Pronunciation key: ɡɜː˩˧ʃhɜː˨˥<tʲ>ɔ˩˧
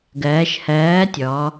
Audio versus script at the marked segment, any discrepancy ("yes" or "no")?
no